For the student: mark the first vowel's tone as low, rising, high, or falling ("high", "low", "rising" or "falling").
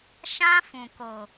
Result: high